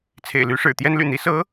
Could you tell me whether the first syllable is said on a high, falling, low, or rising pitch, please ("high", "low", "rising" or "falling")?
low